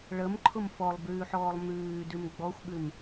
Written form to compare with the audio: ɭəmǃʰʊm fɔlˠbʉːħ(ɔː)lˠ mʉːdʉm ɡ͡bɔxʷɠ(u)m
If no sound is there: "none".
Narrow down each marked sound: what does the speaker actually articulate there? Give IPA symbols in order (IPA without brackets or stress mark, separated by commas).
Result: ɔː, ʉ